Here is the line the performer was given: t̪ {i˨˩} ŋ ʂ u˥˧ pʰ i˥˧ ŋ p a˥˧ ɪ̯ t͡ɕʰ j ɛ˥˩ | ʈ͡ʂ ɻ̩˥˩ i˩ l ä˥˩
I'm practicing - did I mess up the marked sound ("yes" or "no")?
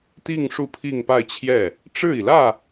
yes